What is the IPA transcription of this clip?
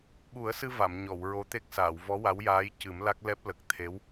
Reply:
ɓu˨˩˦ə̯sɨ˧ va˨˩˨mɲɔ˨˩˨wɹo˧˥t̪e˦˥k̚ saː˨˩˨wvɔ˧˥wa˧˥wjaː˧˥j cɨ˨˩˦mla˦˥k̚ lɛ˦˥p̚lə˨˩k̚ t̪ʰe˧˥w

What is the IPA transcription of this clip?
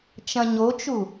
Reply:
t͡ʃɐ̃ɲot͡ʃu

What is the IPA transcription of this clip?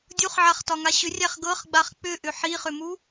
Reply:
dʲuχʕaχtɒŋa ɕʏrʲæχ ɡɤχɡ͡baχ k͡pʏʔʏ ħiχʏmu

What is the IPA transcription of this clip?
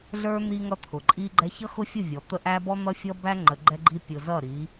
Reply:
ɮə˞˦ n̪i˦ŋʌ˦ t̪ʰʊ˨ǃʼi˦ɡ͡ǃɛ˦ çʌ˦xʊ˦fʲʊ˦˨ vʲɔ˨ t̪ə˦ ʔæ˦bɔ˦ n̪ʌ˦fʲʌ˦bæ˦ ŋ͡ǃə˨ɡ͡ǃɛ˦ɡ͡ǃi˦ pʲʊ˨ zʌ˦˨ɾi˨˦

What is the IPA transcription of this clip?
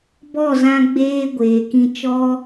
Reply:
bɔ˦˨zã˧ ɡ͡beː˦ ɡʷeː˨kĩ˧ t͡ʃɔ˦

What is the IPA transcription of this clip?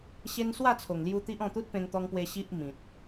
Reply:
ɕe˦n swa˥˧t͡sʰo˨˩ŋlju˧ t̪i˦ʔɔ̃˥˧ t̪u˦t̚pẽ˧ŋt̪ɔ˧ŋpwe˧ ɕi˦ʔ mĩ˨t̚

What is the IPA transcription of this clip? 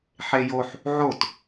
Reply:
ħejoħ | ʕot

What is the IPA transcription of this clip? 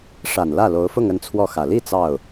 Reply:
ʂa˨˩nlä˥˩lo˧˥ʊ̯fʊ˥˧ŋ ə˥˧nt͡sʰwɔ˥˩xä˨˩ li˥˧ t͡sɑ˥˩ʊ̯

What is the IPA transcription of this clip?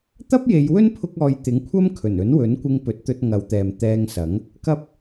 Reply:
t̪ɐ˥p̚je˨˧jwɵ˥n pʰʊ˥k̚ɔː˧j t̪ɪ˨˥ŋkʷʰɐ˥m kʰɵ˨˩nɵ˨˥n wɵ˨˥nkʷɪ˧ŋ pɵ˨˥t̚t̪ɵ˧t̚ŋɐ˨˧wt̪ɛː˨m t̪ɛː˧ŋsɐ˨˥ŋ | kɐ˧p̚

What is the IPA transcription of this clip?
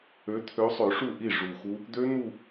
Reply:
ø˨˦t̪ʰø˨˦sˤø˨˩˦ ʂu˥˩ʔi˥˩ ʐu˨˩xu˦˥ | d̪ø˦˥ n̪u˥˧

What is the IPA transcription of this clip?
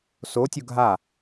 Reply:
sotʲʊ ɡʱa

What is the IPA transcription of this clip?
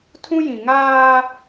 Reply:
tʰũ˦jĩ˨ ŋaː˦

